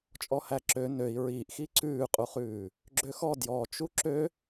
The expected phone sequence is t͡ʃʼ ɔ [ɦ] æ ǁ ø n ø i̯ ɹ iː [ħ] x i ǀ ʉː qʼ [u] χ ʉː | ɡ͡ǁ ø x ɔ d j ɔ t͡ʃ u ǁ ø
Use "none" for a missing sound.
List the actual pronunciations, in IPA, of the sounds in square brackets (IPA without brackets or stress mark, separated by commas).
h, ʔ, u